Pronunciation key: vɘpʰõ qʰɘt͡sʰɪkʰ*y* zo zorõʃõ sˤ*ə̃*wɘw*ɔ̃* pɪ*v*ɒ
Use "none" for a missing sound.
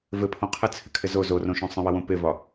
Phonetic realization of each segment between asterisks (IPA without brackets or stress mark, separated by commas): ɪ, ə̃, õ, v